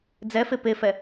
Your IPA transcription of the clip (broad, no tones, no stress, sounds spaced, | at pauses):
d͡z ɛ f e p e f ɛ